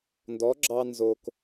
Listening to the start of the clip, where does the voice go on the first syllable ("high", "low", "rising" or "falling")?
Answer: rising